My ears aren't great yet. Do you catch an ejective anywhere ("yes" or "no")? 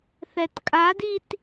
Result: yes